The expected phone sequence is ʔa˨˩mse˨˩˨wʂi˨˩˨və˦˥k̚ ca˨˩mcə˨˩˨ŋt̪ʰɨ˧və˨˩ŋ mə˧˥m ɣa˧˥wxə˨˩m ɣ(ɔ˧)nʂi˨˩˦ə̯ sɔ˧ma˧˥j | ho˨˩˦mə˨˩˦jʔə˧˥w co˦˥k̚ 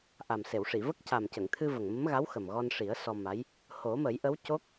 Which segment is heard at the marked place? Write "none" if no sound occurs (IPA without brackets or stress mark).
ɔ˧